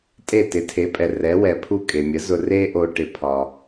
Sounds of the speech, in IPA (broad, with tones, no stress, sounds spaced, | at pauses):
tʼ e˥˩ t ɪ˩˥ tʰ e˩˥ pʼ ɛ˩ r ɛ˩˥ w ɛ˩ pʰ u˥˩ kʼ e˩ mʲ ə˩˥ z ʊ˧ r e˥ ʔ o˧ ʈ ɪ˧ pʰ ɒ˩